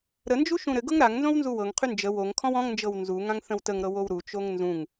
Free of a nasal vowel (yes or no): no